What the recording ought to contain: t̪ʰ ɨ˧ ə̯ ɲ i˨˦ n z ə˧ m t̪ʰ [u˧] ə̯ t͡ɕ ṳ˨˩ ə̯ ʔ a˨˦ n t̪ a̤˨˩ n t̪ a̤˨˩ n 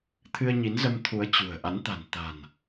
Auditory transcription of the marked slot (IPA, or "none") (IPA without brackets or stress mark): u˨˦